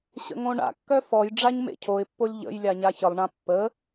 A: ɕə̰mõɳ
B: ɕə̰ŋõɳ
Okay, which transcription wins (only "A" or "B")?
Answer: B